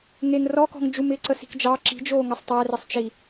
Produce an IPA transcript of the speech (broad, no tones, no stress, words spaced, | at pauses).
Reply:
ŋeŋ rɔkɔ̤ŋ d͡ʒumɪːǀəsi̤k d͡ʒɑ ǁi̤d͡ʒoːŋɘsˤ tˤærɪsˤt͡ʃi